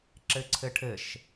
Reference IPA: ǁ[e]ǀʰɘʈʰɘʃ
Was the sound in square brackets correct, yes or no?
no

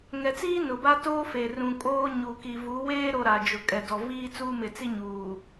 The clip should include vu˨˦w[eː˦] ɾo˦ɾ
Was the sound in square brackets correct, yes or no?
yes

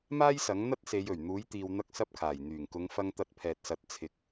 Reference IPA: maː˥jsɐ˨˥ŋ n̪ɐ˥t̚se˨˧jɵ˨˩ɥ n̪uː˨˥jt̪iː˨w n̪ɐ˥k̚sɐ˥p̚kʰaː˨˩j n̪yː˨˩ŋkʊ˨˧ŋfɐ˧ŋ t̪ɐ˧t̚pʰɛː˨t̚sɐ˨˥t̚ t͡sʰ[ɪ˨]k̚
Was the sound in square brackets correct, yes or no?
no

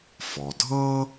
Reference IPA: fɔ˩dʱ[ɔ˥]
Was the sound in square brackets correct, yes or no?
no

